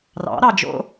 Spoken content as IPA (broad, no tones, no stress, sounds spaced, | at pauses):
r ɑ̰ ɾ ɑ d͡ʒ o̰